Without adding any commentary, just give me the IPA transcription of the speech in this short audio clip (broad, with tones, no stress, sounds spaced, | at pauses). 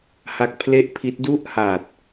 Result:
h a˦˥ k̚ pʰ l e˥˩ ʔ pʰ i˦˥ t̚ d u˦˥ ʔ h aː˨˩ t̚